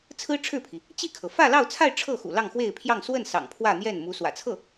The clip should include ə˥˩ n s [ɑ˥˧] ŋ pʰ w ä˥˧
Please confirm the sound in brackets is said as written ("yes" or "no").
no